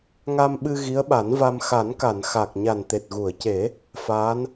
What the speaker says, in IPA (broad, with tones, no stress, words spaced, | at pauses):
ŋa˧mɓɨ˧ ɣi˧˥ə̯ɓa˨˩˦nva˧m xa˨˩˦nka˨˩˨n xa˨˩k̚ ɲa˨˩nt̪e˨˩t̚ɣu˨˩˨ə̯ce˨˩˦ | faː˧˥n